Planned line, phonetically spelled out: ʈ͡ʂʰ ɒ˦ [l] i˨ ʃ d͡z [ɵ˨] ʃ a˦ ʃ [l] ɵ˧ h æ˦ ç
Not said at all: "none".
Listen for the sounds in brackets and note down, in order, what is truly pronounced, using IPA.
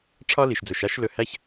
l, ɵ˨, l

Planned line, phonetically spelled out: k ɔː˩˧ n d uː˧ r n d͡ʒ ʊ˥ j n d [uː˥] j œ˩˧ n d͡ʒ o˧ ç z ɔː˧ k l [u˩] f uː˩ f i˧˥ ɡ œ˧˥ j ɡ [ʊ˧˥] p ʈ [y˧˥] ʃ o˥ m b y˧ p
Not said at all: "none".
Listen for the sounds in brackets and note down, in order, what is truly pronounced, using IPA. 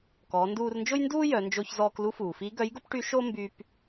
uː˥, u˧˥, ʊ˥, y˧˥

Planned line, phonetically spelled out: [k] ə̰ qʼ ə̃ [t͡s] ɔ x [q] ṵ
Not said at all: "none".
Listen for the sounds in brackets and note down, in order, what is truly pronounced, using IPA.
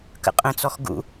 k, t͡s, ɡ

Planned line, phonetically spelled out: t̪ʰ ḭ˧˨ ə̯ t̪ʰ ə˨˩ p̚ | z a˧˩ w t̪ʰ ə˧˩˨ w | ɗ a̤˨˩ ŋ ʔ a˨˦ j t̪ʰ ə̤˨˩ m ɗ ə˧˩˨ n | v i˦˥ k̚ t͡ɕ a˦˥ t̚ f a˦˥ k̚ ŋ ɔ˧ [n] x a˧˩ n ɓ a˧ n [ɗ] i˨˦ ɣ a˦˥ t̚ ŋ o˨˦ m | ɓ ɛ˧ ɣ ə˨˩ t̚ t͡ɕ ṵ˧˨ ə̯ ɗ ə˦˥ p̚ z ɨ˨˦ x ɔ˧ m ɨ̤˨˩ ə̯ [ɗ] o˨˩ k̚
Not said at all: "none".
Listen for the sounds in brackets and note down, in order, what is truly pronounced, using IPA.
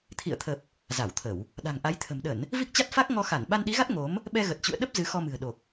none, ɗ, ɗ

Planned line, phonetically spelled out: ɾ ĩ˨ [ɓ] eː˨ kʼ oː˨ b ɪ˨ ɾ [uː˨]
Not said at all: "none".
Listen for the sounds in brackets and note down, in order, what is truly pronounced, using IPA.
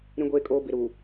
ɡʷ, uː˨

